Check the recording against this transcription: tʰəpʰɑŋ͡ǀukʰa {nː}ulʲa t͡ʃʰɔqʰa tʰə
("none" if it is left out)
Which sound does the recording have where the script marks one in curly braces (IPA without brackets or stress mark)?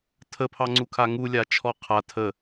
ŋ